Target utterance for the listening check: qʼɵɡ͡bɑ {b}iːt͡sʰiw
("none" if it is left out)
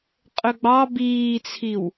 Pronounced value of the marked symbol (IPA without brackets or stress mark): b